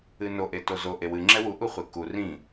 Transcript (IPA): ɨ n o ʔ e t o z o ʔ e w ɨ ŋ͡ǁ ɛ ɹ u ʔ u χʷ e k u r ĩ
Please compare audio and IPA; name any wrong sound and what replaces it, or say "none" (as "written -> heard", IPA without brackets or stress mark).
ɹ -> w